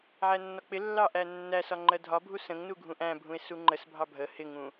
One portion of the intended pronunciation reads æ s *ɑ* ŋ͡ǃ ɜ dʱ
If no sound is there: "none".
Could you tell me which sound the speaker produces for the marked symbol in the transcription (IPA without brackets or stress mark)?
ɒ